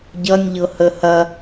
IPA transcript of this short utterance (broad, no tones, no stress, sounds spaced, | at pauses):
ɟ ʌ nʲ ʎ ɤ h ə h ɐ